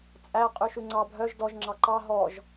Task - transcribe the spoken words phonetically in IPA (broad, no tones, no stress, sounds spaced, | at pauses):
t͡sʼ æ qʼ ʉ ʃ ʉ ŋ͡ǀ ɑ bʱ œ ʒ d ɔ ʒ ŋ͡ǁ ɑ ǃ ɑ ɦ ɔ ʒ